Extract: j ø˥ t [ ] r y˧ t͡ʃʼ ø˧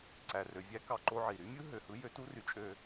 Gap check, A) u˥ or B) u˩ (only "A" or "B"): A